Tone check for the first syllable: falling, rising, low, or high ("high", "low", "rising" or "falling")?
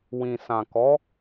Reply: low